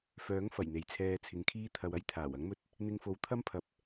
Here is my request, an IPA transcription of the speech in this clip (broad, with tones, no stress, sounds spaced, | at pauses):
f œː˨˥ ŋ f ɐ˨˩ j n̪ e˨ j t͡sʰ ɛː˧ t͡sʰ ɪ˨˧ ŋ kʰ iː˥ t̪ʰ ɐ˧ w ɐ˥ j t̪ʰ aː˨˩ w ɐ˨˥ ŋ m ɵ˧ t̚ | n̪ ɪ˧ ŋ f o˨ w t̪ʰ ɐ˥ m pʰ ɐ˨˥ p̚